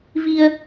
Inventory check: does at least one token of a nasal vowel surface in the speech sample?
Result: no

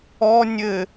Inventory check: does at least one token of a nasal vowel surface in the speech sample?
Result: no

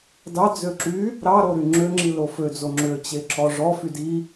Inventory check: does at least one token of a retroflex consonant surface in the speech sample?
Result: yes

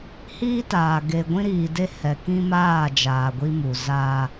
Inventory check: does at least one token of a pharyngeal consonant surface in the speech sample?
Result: no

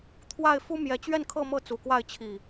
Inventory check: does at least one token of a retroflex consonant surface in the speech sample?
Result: no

